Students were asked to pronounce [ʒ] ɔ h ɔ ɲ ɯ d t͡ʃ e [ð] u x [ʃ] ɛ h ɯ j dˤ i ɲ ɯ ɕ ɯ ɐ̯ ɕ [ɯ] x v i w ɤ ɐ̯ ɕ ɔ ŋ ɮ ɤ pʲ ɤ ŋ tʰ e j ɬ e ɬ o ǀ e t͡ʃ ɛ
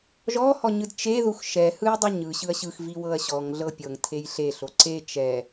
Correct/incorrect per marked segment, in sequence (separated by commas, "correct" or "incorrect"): correct, correct, correct, correct